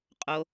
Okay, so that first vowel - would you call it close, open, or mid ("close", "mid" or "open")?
mid